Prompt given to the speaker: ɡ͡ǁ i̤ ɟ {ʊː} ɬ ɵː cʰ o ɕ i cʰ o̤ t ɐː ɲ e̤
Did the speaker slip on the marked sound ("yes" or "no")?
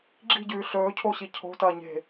yes